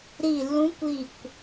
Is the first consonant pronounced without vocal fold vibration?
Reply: no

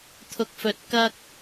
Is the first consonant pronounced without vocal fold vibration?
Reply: yes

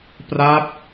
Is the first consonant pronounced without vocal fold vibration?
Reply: yes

